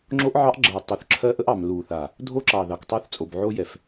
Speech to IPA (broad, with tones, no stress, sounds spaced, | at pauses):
ŋ͡ǁ o˦ ʔ ʕ ɑ˦ ʔ ɡ͡ǁ ɜ˨ tˤ o˨ θ ǁʰ ɜ˦ ʔ ə˦ ʔ ɑ˨ m l u˨ θ a˨ | dʱ o˦ ǁ ɑ˨ ð ɑ˨ k tˤ ɑ˦ θ t͡sʼ o˨ b ʕ o˦ j ɛ˨ f